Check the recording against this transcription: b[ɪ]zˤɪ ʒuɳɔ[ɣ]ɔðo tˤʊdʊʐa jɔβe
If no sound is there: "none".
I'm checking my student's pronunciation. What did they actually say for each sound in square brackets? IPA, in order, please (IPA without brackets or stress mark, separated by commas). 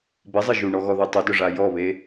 ɪ, ɣ